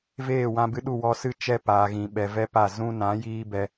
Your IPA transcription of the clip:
veː˦˨wã˧bɨ˧ɗu˦˨ wɔ˧sɨ˦ t͡ʃɛ˧ paː˨ɣĩ˨ɓɛ˨ vɛ˧ pa˦˨ zũ˧nã˨˦jiː˧ bɛ˧

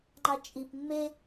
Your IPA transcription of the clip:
ŋ͡ǃɑt͡ʃʼip mːe

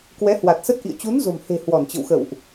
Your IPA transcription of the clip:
kwɛ˨˦hwa˨˩t̚sə˦˥t̚ʔḭ˧˨ə̯ t͡ɕu˨˦nzo̤˨˩mhe̤˨˩ hwɔ˧˩nt͡ɕə̰˧˨wxə̰˧˨wʔ

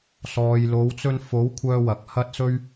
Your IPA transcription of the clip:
sɔː˨jlo˨˧wt͡sɵ˧n fo˨˥wkʷʰœː˧ wɐ˨k̚hɐ˥t̚sɵ˥ɥ

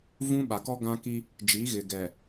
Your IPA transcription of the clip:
vũ˦ ɓa˨kɔ˦ ɡã˦ki˦ | d͡ʒi˨˦ɣɪ˨ ɡɛ˨

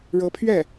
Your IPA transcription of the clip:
ɻɤ˧˥pʰɥɛ˥˩

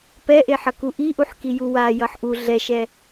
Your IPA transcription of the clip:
pɛʔeħʌ kuʔiʔuħki juwa jʌħʔu ɮɛʃɛ

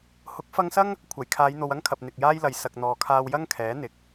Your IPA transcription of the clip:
hʊ˨˥k̚fɐ˧ŋsɐ˥ŋ | kʷʰɐ˨˩jkʰaː˨˧jn̪o˨w ɐ˥ŋkʰɐ˨p̚ n̪ɪ˨k̚jaː˥jlɐ˨j sɐ˨k̚ n̪ɔː˨kʰaː˧w jɐ˥ŋkʰɛː˨˥ n̪ɪ˨k̚

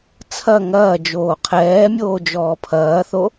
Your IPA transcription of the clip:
t͡sʰɐ ŋɐːd͡ʒoː qʰɛːmʲoːd͡ʒɔː pʰɐːθo

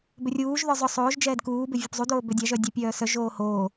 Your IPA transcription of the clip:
bʏrʲuːʒðœ zˤʊ sˤoːʒ d͡ʒɛːdkuːbɪ vʲʊpzˤudoː bʏdʲaʒœ dʲøpʲœːsœʒoː hoː

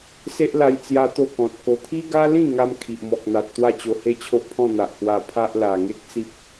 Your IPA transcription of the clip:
se˦ʔla˧j t͡sja˦t̪o˥˧kɔ̃˨t̚ko˧ t̪ʰi˦ɡa˦lĩ˥˧ŋa˧m kʰi˨ʔmɔ˨k̚n̪a˨t̚ t̪wa˥˧t͡ɕo˧he˦ t͡ɕʰo˦ʔpʰɔ̃˥˧n̪a˨ʔ hwa˧ pʰa˦ʔ la˨˩ŋe˦k̚t͡si˦p̚

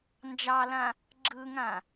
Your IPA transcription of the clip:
nd͡ʒɑlã | ɡ͡ǁɯŋã

